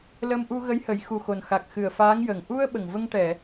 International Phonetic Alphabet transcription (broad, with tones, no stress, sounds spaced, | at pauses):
l ə˧ m ʔ u˧ ɣ ə˧˥ j h ə˨˩˦ j x u˨˩ x o˨˩ n x a˨˩ k̚ x ɨ˨˩ ə̯ f aː˧˥ ŋ j ə˨˩ ŋ ʔ u˧ ə̯ ɓ ə˨˩ ŋ v ə˧ ŋ ʈ ɛ˨˩˨